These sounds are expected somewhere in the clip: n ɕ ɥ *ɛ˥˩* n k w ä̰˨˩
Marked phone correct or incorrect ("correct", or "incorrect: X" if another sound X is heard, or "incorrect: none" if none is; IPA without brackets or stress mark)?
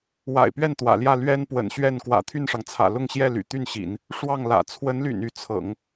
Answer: correct